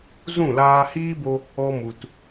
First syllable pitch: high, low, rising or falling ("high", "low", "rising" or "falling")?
falling